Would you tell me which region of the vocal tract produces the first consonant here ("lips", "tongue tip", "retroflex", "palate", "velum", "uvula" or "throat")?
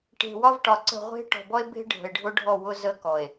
retroflex